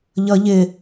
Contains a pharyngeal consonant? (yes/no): no